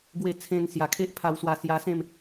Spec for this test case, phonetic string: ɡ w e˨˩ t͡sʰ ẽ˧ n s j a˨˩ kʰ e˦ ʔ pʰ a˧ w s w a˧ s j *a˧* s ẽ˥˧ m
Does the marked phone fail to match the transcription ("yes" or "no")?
no